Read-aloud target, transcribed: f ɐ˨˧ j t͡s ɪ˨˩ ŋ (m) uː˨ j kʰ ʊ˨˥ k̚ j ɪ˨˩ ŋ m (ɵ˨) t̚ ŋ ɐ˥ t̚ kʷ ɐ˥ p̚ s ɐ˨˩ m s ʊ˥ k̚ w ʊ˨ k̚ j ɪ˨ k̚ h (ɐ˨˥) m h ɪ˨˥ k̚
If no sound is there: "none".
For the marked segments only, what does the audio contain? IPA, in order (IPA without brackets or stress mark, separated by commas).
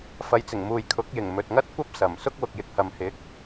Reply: m, ɵ˨, ɐ˨